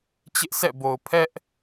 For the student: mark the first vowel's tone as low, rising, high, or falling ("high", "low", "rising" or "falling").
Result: high